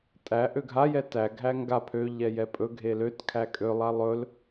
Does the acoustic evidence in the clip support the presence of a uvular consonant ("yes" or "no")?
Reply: no